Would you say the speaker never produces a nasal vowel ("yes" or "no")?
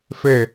yes